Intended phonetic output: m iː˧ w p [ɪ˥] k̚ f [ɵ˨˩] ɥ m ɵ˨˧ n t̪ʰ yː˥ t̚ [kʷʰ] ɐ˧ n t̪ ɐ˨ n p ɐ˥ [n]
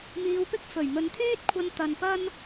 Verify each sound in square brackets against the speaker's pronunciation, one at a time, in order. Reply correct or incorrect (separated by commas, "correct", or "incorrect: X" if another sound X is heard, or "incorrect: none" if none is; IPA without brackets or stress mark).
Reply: correct, correct, correct, correct